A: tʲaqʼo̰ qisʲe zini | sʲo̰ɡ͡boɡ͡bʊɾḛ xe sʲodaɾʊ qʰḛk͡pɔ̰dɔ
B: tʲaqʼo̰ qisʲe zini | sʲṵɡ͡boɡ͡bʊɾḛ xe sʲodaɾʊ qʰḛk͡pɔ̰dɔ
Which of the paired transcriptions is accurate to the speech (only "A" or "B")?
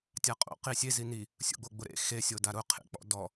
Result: B